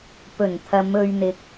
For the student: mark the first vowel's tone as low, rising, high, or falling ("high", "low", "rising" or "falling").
low